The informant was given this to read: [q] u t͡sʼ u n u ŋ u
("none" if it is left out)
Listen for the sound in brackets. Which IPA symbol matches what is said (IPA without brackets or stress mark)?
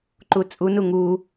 ǃ